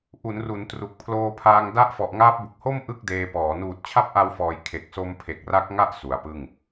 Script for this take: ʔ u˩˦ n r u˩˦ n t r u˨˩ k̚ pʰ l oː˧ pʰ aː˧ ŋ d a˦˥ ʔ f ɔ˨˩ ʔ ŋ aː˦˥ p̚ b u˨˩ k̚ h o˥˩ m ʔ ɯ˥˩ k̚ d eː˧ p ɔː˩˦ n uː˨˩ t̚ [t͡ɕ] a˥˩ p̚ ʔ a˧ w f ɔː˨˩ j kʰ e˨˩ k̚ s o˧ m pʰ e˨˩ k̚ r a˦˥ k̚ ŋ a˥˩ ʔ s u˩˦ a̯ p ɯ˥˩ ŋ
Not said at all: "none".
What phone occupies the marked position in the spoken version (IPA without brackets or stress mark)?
t͡ɕʰ